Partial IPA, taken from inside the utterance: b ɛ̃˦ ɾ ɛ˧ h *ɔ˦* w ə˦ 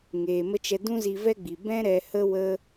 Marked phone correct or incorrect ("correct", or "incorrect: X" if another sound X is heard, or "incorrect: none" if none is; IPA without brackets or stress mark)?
incorrect: ə˦